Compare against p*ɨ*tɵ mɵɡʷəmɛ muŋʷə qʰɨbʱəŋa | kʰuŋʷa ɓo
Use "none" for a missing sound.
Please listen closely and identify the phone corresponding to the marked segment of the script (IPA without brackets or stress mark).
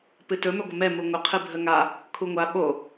ɨ